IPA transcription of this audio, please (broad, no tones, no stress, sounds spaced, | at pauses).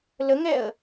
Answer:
l ə ŋ ɛ ə̯